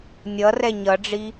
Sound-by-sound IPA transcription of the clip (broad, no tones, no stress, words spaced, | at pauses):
nʲʌrɛ ɲʌɖ͡ʐi